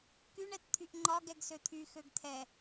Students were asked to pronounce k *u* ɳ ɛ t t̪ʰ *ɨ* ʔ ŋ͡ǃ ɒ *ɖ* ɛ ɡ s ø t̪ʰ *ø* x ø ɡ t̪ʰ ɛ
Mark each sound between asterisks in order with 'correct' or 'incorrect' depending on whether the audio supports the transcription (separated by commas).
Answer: incorrect, incorrect, incorrect, incorrect